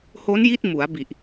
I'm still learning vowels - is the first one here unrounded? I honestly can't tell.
no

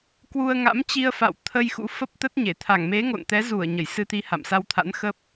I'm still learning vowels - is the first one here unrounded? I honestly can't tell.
no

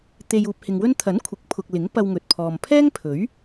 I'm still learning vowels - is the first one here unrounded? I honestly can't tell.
yes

